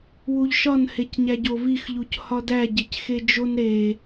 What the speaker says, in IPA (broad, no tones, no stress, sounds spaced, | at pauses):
w u ʎ ʃ ɒ n h e c ɲ æ ɟ o v i x ʎ u c h ɒ d æ ɟ e c x e d͡ʒ o n ɾ e